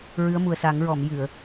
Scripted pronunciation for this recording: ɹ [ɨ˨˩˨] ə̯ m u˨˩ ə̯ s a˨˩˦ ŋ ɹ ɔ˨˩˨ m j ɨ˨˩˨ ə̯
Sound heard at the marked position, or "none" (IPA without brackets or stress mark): ɨ˧˥